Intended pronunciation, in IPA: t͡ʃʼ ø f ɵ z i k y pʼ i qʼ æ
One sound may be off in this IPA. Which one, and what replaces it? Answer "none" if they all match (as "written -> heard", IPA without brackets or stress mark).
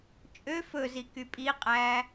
none